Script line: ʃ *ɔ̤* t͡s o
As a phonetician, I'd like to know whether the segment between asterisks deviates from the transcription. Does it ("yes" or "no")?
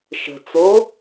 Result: yes